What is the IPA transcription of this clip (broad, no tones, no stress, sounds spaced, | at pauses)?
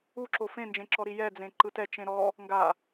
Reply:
u ǁ o f ẽ n d͡ʒ ẽ ǁ ɔ ɾ i j ɛ d͡z ẽ ǃ ɯ t ɛ t͡ʃ ẽ ɾ ɔ | ŋ ɡ a